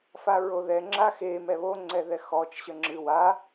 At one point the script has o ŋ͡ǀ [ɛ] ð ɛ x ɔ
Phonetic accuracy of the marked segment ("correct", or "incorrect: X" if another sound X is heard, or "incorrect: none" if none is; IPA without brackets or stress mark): correct